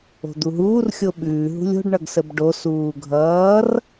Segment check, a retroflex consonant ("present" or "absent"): present